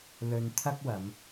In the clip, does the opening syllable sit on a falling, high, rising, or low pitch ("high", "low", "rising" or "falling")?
low